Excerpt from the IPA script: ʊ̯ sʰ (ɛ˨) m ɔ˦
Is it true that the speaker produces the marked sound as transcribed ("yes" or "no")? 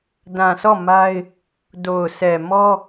yes